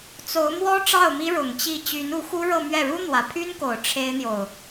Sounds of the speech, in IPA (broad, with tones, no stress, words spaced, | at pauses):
t͡so˧˥ʊ̯mwɔ˥ ʈ͡ʂɑ˥˩ʊ̯mi˥ɻʊ˨˩ŋ t͡ɕi˥˩ t͡ɕy˧˥nu˧˥xu˥ ɻɤ˥˧mɥɛ˥˩ ɻu˥n̪wä˨˩pʰy˥nko˨˩ʊ̯ ʈ͡ʂʰe˥ɪ̯n̪jo˨ʊ̯